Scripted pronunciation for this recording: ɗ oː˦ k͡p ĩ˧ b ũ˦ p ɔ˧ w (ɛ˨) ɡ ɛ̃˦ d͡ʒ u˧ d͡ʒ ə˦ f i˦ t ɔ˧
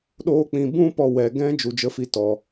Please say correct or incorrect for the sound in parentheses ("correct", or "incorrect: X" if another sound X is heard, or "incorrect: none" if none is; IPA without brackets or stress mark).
correct